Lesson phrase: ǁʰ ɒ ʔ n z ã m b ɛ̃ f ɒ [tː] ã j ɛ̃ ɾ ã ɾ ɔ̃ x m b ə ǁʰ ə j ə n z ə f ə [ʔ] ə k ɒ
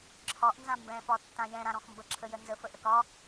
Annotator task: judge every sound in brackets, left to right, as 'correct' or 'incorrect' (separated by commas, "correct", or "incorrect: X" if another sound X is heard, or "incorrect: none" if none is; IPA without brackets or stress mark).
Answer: correct, correct